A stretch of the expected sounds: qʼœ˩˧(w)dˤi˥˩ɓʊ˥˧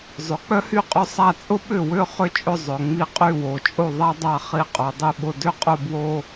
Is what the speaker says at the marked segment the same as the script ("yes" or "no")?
no